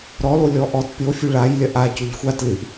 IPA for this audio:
ɾɔlo lʲɔʔɔt pʲofʲu ɭajlʲɐ ʔa coʎxʷa tlɨʔ

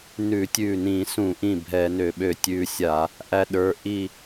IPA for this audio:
nʉ˧˩˧tʲʉ˧˩nĩ˧˩˧sũ˧˩˧ ʔĩ˥˩bʱɛ˧˩˧nø˧˩˧ ɓø˧˩tʲʉ˧sʲa˧˩˧ | ʔæ˧ɗə˞˩˧˩ ʔi˥˩

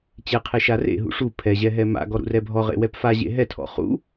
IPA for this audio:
t͡ɕeqʰe ʃarḛɦṵ ʂu pʰɛʑɛ ɦɛma̰ɡɔ ɾṵrɛbʱɔʁḛ wɛpfaʑḛ ɦɛtʰɔ̰ χṵ

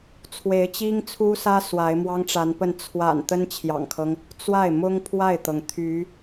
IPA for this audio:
t͡sʰwe˧˥ɪ̯t͡ɕi˥ŋt͡sʰu˥sä˥ swa˧˥ɪ̯mwɑ˥ŋʈ͡ʂa˧˥npə˥˩n t͡sʰwa̰˨˩n t̪ə˥nt͡ɕʰjɑ̰˨˩ŋkʰɤ˦ŋ | t͡swa˥˩ɪ̯mʊ˥ŋ pʰwa˥˩ɪ̯t̪ɤ˩ŋ t̪ʰy˧˥

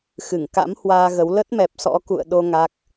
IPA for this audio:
xɨ˧˩ŋ ka̰˧˥m hwaː˧ɣə˨˦w lə˦˥t̚mɛ˨˩p̚sɔ̰˧˥ kṵ˧˨ə̯ ɗo˧ ŋa˦˥k̚

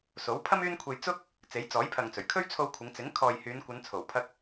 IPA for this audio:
so˨˥wpʰɐ˥m yː˥nkʷʰe˧j t͡sʊ˥k̚ | t͡se˨˥jt͡sɔː˨˥jpʰɐ˨ŋt͡sɵ˨˩ɥ kʰɵ˥ɥt͡sʰo˧wkʷʰɪ˨˧ŋ t͡sɪ˨˥ŋ kʰɔː˨jhyː˨˧nkʷɐ˨˧n t͡sʰo˨˩wpʰɐ˧k̚

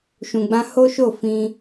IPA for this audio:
ʃũ˨ɡ͡bã˧ ho˦ʃo˦˨ fĩ˧

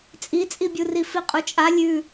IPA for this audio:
t͡sʼit͡sʼibʲuri fiqʼut͡ʃʼa lʲʉ

